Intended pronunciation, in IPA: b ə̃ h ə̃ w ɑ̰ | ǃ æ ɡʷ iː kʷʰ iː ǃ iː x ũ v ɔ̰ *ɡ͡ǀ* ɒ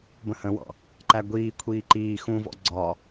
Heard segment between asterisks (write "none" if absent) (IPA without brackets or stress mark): ɡ͡ǀ